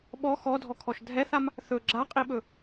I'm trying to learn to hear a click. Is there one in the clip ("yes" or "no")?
yes